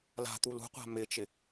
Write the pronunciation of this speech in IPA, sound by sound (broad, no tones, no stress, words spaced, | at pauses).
la̤t̪u lṳqʷa̤ mɪt͡ʃɪ